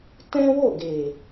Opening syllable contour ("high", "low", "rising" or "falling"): high